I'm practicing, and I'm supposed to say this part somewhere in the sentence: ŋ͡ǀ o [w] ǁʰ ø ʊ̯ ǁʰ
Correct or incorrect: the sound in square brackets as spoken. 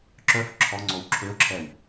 correct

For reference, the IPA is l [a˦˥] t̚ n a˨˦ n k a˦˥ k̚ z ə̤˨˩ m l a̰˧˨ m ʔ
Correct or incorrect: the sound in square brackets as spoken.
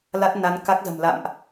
correct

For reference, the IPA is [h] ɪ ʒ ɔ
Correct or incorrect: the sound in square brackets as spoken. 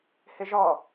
correct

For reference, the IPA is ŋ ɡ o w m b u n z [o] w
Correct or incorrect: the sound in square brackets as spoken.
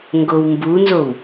correct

